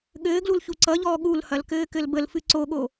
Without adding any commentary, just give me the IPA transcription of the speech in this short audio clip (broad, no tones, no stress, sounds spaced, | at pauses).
ɠ ɘː ɡ l u l ç u ǀ ʌ ʎ ɔː ɠ u l h ɐ l k ɘː k ɘ l b ə l f ɨ ǀ o ɠ o